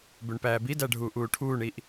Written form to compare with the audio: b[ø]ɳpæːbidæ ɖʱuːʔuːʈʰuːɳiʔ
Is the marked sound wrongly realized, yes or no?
no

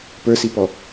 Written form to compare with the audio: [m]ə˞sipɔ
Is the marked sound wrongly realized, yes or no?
yes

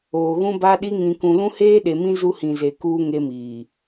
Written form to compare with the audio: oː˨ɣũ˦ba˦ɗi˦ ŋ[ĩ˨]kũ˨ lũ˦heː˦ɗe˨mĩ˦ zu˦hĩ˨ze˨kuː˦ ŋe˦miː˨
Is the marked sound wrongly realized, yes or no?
no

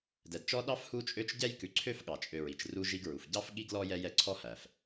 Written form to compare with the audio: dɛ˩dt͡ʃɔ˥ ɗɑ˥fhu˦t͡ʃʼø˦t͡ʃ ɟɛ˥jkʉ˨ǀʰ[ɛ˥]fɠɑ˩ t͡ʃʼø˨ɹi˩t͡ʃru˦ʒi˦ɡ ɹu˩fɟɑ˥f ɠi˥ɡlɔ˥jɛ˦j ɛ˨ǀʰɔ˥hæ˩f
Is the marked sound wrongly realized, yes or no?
yes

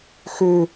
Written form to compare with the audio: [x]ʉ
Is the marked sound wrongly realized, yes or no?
no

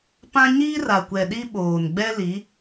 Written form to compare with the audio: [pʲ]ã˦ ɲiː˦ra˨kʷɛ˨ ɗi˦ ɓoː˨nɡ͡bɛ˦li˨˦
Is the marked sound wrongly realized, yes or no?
yes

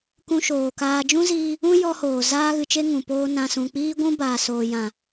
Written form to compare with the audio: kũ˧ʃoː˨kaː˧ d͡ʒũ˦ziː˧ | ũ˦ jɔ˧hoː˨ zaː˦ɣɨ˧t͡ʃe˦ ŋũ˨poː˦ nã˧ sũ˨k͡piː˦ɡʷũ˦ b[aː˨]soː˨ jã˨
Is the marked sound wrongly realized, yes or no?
no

